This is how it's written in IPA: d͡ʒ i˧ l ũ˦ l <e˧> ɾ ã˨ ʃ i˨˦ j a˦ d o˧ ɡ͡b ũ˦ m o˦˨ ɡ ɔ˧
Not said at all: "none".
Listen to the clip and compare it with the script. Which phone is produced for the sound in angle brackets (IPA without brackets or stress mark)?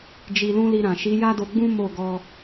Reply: i˧